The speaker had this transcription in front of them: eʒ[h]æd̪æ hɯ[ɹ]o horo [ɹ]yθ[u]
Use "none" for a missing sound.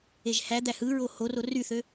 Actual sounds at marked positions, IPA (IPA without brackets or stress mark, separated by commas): h, ɹ, r, ø